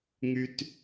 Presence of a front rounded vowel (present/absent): present